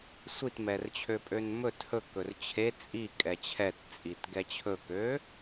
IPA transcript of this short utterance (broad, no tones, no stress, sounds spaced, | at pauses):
sʷ i t m ɛ r t͡ɕʰ ø pʼ ø n m ɵ t h ɵ k ɵ r t͡ɕʰ e t͡sʼ i kʼ ɛ t͡ɕʰ ɛ t t͡sʼ i t ɡ ɛ t͡ɕʰ ɵ k ø